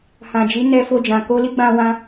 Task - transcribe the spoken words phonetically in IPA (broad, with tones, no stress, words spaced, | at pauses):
hã˨d͡ʒi˨˦nɛ˧ fo˧d͡ʒã˨ ko˧li˦ɡ͡bã˧wã˧